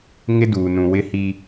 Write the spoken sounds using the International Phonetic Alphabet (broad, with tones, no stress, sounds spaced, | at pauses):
ŋ ɪ˦ d uː˨ n ũ˨ w ɪ˦ h i˦